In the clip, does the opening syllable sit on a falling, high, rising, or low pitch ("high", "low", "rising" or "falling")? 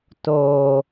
low